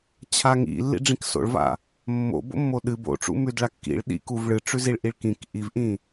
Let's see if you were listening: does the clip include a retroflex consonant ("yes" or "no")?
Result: yes